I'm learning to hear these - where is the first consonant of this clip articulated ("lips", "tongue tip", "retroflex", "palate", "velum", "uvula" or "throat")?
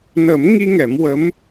tongue tip